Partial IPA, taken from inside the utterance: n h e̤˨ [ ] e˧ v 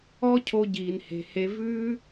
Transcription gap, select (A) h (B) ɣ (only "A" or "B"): A